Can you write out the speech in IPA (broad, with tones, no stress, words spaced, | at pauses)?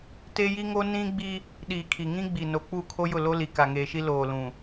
te˦ji˦ŋo˦ nĩ˦ ɡ͡bi˦ | ɗiː˨kʰi˨ŋĩ˦ ɡ͡bi˨no˨k͡pu˦˨ kʰo˦jʊ˦˨lo˦li˨ ka˨ŋeː˨ʃi˦ loː˨lũ˨